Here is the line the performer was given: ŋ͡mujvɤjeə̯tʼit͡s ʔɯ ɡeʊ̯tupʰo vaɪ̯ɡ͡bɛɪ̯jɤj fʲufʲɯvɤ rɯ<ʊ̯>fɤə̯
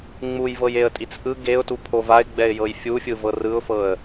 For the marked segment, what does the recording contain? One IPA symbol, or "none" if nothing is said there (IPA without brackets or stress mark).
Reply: ʊ̯